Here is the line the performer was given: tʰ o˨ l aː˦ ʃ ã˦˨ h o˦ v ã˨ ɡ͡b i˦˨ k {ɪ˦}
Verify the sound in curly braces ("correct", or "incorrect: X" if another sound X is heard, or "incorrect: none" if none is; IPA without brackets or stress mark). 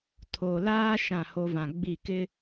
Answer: correct